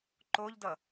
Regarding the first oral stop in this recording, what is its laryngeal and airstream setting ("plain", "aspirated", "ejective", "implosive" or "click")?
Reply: click